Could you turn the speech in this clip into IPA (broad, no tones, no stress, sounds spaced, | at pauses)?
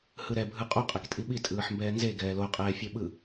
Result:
h ɯ ɾ ɛ bʱ ɯ qʼ u qʼ ɛ k tʼ i ɓ i tʼ ɯː ħ m b ɛː n z e ɡ ɛː l o qʼ ɛː fʲ e ɓ ɯ